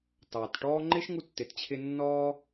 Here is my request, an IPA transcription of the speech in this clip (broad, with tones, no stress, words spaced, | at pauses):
tɑː˩tʈɔː˥ ŋ͡ǃɪ˥ʃŋu˧ tːɪ˩t t͡ɕʰɪ˧ nːɔː˥